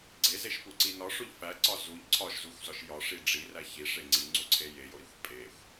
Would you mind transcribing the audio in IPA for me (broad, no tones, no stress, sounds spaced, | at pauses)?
ɡ͡ǀ e z e ʃ p u ǀ i n ɒ ʂ o ʎ f æ ǀ ɒ z u ʎ ǀʰ ɒ ʃ z u xʷ z ɒ ʃ j ɒ ʂ i ɖ͡ʐ i r æ ç i ʂ e ŋ͡ǀ i ŋ͡ǀ u ǀʰ e j e j o ɾ i xʷ pʼ e xʷ